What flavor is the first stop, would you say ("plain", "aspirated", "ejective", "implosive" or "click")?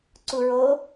click